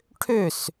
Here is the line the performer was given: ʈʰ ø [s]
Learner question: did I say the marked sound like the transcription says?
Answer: yes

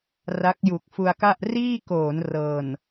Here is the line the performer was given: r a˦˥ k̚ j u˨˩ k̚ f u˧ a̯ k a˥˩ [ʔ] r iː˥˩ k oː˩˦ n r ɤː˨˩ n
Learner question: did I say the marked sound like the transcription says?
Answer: yes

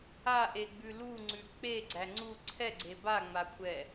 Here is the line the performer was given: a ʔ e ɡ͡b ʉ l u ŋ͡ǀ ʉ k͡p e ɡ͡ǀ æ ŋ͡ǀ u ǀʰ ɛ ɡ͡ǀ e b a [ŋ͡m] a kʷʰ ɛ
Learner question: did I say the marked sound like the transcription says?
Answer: yes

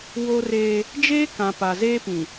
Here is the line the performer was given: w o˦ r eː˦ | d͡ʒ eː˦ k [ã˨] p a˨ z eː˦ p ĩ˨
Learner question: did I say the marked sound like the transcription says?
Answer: yes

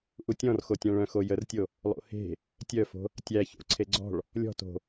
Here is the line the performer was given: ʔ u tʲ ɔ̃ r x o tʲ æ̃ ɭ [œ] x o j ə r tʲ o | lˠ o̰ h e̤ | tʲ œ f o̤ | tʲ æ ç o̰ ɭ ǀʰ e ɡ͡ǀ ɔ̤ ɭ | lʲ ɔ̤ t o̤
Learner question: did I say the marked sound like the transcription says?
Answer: no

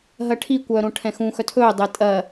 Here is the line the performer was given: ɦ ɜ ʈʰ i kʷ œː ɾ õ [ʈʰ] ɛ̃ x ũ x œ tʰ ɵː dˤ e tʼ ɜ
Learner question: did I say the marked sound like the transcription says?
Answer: yes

